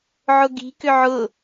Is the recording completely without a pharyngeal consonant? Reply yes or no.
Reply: no